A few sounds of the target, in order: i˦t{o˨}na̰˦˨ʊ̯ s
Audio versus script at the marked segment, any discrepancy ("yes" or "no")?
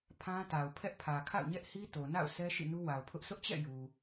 no